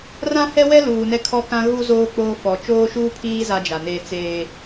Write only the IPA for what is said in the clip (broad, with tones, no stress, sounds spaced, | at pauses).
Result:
r ã˦ h ɛ˦ w ɛ˦ l uː˨ n ɛ˦ kʰ ɔ˦ k ã˦ ɣ u˦ z oː˦ k͡p oː˦ f ɔ˨ t͡ʃ oː˦ ʃ uː˦ pʰ iː˦ z a˦ d͡ʒ a˨ n eː˦ t͡s eː˦